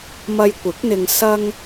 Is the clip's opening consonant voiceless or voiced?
voiced